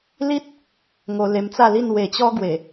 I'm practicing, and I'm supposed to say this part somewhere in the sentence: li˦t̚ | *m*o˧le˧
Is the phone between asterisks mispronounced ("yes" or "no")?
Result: yes